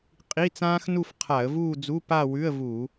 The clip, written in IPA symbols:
qʼi˧˥˧t͡sãː˥x nu˥˧fqʰa˧˩˧ə̯vuː˥˧d͡zu˧˥˧ pa˥˧wʉ˧˥˧ə̯vu˧˩˧

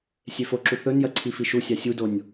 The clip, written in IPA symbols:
sʲefoǁu θɵnjɐ ǀʰifiʃusʲa sʲudonʲ

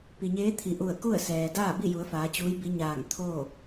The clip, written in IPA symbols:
pi˩ɲeː˧˥t̪ʰi˩˧ʔu˧˩ə̯ ku˥˨ə̯sɛː˩ daː˥˨bi˥˨ju˩˧ə̯ faː˩˧t͡ɕuː˧˥jbi˧˥ɲaː˧˩ŋ t̪ʰoː˥˨

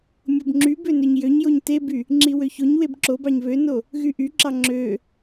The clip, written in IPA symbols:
mʲobŋ͡ǁybø nøɲjøɲjoɲ teby | ŋ͡ǁiwøçoɲweb ǁobɑɲ βøno | ɣyʔyǁɑ ŋ͡ǁø

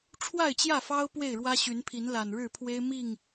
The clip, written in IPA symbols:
ʈ͡ʂʰwa˥˨ɪ̯t͡ɕjä˥˨fɑ˦ʊ̯ pwe˥˨ɪ̯ɻwä˦ɕy˨˦npʰi˨˦n la˨˩nɻɻ̩˥˨pʰwe˦ɪ̯ mi˥˨ŋ

